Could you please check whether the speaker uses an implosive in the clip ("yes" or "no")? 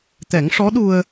yes